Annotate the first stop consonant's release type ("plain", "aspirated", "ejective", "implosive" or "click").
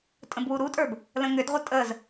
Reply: ejective